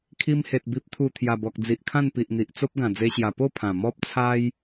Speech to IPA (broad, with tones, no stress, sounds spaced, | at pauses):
kʰ i˧ m h e˨ t̚ b i˨ p̚ t̪ʰ u˨˩ t̪ʰ j a˨˩ b ɔ˨ k̚ d͡z i˨ ʔ kʰ ã˥˧ n p i˨ ʔ n̪ i˨ ʔ t͡s o˦ p̚ ɡ ã˨˩ d͡z e˦ ɕ j a˧ p o˥˧ pʰ ã˨˩ m ɔ˦ p̚ t͡sʰ a˦ j